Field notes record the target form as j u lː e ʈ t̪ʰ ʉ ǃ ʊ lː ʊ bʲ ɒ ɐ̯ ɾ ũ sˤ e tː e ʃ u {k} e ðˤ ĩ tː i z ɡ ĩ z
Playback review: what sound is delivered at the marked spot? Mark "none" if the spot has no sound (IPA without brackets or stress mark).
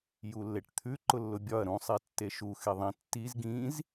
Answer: x